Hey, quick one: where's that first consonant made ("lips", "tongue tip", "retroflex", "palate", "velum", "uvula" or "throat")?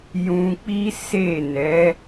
palate